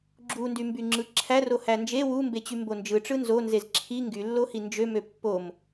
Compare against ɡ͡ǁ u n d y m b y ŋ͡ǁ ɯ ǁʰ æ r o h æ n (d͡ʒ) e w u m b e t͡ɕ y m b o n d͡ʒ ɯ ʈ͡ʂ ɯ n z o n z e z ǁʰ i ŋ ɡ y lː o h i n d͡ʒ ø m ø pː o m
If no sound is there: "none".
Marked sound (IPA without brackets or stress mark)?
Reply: d͡ʒ